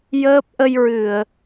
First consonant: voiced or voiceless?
voiced